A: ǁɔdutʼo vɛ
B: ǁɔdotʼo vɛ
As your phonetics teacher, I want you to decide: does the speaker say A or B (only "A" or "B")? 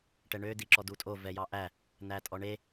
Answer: A